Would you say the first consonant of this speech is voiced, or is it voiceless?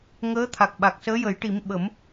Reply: voiced